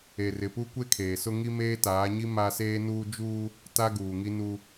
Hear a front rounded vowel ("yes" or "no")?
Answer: no